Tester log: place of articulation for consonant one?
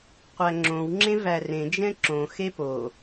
uvular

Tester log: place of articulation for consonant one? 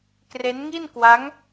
velar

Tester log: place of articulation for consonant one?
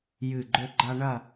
palatal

